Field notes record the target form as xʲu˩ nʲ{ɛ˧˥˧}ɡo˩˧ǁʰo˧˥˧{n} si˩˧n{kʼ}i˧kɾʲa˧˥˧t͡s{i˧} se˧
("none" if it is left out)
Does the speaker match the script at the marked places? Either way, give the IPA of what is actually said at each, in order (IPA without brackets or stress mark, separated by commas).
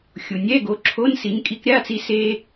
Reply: ɛ˧˥˧, n, kʼ, i˧